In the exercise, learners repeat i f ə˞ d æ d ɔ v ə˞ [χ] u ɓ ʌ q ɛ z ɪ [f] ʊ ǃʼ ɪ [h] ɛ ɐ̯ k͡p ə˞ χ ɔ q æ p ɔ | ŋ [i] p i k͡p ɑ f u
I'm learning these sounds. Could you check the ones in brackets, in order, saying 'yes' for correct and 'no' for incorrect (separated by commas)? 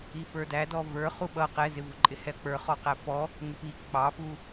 yes, no, yes, no